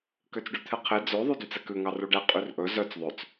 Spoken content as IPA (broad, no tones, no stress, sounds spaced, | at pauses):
k ø t͡s ɖ ʉ t̪ʰ ɛ qʰ e d͡z ø ðˤ ʉ d y t͡s ɛ k ʉ ŋ ɑ r u ɖ ɛ qʼ y r ʔ ɵ z œ t͡s ðˤ ø t͡s